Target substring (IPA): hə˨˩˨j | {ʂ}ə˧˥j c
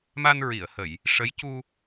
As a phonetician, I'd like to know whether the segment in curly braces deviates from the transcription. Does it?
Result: no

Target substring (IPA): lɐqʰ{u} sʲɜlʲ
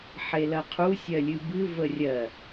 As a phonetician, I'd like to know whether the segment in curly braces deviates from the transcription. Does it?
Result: no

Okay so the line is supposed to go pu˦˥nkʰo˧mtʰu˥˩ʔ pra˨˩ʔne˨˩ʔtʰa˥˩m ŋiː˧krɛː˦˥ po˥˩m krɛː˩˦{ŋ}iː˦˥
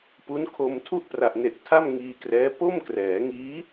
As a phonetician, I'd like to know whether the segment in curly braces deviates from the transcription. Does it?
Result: no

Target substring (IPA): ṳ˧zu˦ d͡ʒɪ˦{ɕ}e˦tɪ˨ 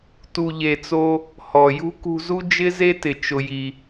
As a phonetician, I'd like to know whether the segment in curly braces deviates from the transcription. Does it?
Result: yes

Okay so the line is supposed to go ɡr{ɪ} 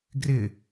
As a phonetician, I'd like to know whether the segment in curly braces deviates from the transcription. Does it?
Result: no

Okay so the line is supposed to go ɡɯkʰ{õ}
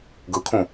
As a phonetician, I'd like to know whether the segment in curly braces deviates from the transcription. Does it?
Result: yes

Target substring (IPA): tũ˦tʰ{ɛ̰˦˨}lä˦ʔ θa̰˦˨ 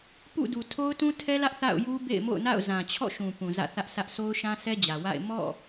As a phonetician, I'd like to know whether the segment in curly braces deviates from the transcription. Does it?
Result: yes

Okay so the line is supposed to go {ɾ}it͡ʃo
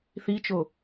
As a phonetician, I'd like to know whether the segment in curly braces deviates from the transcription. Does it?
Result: yes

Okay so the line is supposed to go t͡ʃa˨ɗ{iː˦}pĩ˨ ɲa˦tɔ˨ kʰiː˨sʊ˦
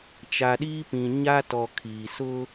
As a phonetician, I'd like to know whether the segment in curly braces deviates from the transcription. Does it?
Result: no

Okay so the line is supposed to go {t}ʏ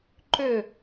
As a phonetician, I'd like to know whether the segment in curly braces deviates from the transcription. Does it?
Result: yes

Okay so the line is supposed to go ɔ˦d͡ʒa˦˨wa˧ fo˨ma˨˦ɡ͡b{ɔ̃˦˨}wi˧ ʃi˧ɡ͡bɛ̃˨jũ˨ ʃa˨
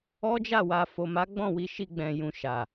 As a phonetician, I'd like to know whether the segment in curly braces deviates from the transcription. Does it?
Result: no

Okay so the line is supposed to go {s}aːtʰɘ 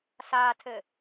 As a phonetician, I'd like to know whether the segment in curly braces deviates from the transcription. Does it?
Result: no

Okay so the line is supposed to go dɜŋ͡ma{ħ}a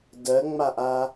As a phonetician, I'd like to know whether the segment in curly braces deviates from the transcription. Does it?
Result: yes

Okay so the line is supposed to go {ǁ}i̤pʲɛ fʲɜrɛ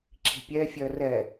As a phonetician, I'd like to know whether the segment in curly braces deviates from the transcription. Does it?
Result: no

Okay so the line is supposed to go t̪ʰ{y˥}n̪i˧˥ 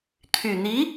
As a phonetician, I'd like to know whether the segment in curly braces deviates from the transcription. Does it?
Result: yes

